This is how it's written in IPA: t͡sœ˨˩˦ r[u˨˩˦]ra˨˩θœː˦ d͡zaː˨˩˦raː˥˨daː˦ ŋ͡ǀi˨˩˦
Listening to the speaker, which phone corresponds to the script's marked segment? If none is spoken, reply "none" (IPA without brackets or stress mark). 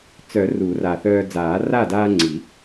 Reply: u˨˩˦